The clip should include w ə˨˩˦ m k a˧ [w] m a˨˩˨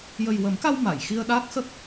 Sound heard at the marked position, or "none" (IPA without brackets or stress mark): w